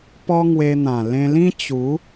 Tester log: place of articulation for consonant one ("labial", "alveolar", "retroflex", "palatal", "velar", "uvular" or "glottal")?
labial